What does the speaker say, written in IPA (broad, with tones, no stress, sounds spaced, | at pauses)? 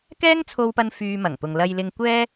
k ɛː˥ ŋ t͡sʰ o˧ w p ɐ˧ n f yː˧ m ɐ˨˩ ŋ p ʊ˨ ŋ l ɐ˨ j l ɪ˧ ŋ kʷ ɛː˥